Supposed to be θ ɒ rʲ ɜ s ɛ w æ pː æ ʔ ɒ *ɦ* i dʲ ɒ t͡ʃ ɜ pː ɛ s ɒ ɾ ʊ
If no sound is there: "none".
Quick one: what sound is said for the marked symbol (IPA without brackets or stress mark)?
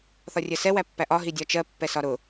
ɦ